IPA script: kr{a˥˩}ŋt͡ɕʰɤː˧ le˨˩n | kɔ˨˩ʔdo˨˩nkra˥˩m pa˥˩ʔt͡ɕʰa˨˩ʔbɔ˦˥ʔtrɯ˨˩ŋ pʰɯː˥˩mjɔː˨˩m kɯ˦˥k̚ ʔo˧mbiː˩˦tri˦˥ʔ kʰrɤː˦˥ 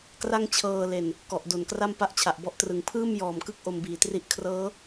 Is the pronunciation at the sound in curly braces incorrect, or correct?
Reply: correct